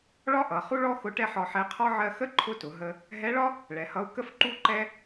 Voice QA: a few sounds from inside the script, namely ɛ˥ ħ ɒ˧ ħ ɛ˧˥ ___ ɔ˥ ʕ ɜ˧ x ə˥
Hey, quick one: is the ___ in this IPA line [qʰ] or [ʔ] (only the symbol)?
qʰ